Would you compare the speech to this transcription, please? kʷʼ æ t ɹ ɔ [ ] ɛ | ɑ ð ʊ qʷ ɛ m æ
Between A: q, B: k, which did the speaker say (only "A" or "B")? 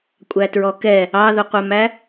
B